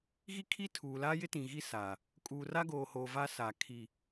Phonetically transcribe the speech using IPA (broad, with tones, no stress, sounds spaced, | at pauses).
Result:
ɣ i˦ kʰ i˦ tʰ uː˨ l aː˦ j ɪ˦ t ĩ˨ ɣ i˦ s aː˨ | kʼ uː˨ r a˦ ɡ oː˨ h oː˨ v a˦ s a˨ kʰ i˨